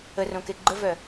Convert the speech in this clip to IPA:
ə r õ k e ɡ͡ǃ ə v œ

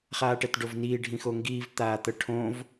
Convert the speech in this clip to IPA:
χ aː ʈ ɛ t ɖ o v n iː ɖʱ ĩ x o ŋ ɡ iː v t̪ aː t̪ ɤ ʈʰ õ v

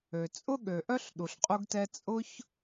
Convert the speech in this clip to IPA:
ø˩ t͡sʼ ʊ˥ ɠ ø˩ ʔ œ˥ ɬ ɗ u˩ ɬ qʼ u˥ ɡ t ɛ˥ t͡sʼ ʊ˥ ç

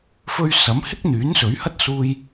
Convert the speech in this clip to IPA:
f ɵ˧ ɥ s ɐ˨˥ m h ɪ˥ k̚ n̪ yː˨˥ n s ɵ˨˥ ɥ h ɐ˥ t̚ s uː˧ j

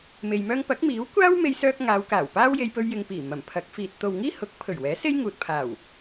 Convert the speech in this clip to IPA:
m e˧ j m œː˥ ŋ p ɐ˨˥ k̚ m iː˨˥ w kʷ aː˥ w m e˧ j s œː˧ k̚ ŋ aː˨˧ w k aː˨˩ w p aː˥ w j e˧ j p ɵ˧ ɥ j ɪ˨ ŋ p iː˨˩ m ɐ˨˩ m pʰ ɐ˨˥ k̚ f iː˨ t̚ t̪ o˨ w ŋ iː˥ h ʊ˨˥ k̚ pʰ ɵ˨˩ ɥ w ɛː˨˥ s e˥ j ŋ uː˨ t̚ pʰ aː˨˩ w

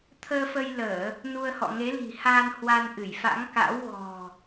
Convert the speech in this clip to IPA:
t̪ʰ əː˧ f ə˧ j l əː˧˩˨ | n u˧ ə̯ h ɔ̰˧˨ ŋ e˨˦ l i̤˨˩ h aː˧ n h w a˧ n ʔ ɨ˧˩ j f a̰˧˥ ŋ k a̰˧˥ w ɣ ɔ̤˨˩

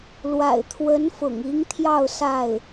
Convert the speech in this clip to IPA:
l w a̰˨˩ ɪ̯ t̪ʰ w ə˧˥ n f ʊ̰˨˩ ŋ i˧˥ ŋ t̪ʰ j ɑ˥˧ ʊ̯ s a˥˩ ɪ̯

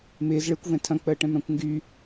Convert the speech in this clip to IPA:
m ɪː z ɭ ɪː kʷ v ɛ̃ tʰ ɐ̃ k͡p əː ʈ ɛ̃ m ɾ ã kʷ ŋ ɡ y

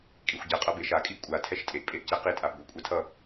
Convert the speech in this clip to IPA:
kʼ i xʷ ɟ ɛ qʼ ʌ b e ʃ a kʼ i ʔ kʷʼ a tʰ ɛ ʃ tʼ e ʔ pʼ e ʔ c ɛ q i tʼ a b ɡʷ i kʷʼ ɛ tʰ ʌ

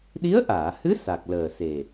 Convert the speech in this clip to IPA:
ɗ i˧˥ ə̯ ʔ aː˨˩˨ h ɨ˧˥ s a˨˩ k̚ l əː˨˩ s e˨˩

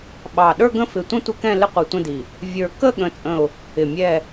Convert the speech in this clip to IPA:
ɓ ɑ˧˩ ɗ ə˞˥˧ ɡ ə̃˥˧ f ɪ˧˩ tʷ ə̃˥˧ tʷ ɪ˥˧ k ɛ̃˥˧ l ɪ˥˧ qʷ i˧˩ tʷ ə̃˥˧ d i˧˩ | vʲ ə˞˧˩ k ə˥˧ ɠ ə̃˥˧ t͡sʼ ə̃˥˧ ʊ̯ | ɪ˧˩ mʲ ɛ˥˧

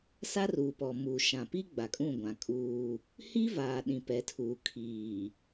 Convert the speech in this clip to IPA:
s a˦ r uː˨ p ɔ˨ m u˨ ʃ ã˨ p i˦ ɡ͡b a˨ kʼ ũ˦˨ ɡʷ ã˨ kʼ uː˦ | h i˦ v aː˨ ɗ ĩ˨ p ɛ˨˦ tʰ uː˨ kʰ iː˨

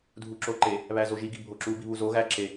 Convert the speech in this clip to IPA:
dʱ u ǁ o ǃ e | β æ z o ʒ i ɡ i bʱ o ǁ u b i β u z o ɣ æ ǁ e

